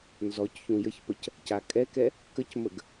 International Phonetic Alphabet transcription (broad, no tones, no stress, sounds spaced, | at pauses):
n z ɔ c ç ũ j ə ç p ə c | c a kʼ ɛ k ɛ | k ə c m ə ɡ